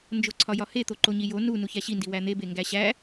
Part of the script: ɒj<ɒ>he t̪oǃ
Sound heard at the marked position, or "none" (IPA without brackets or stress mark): ɒ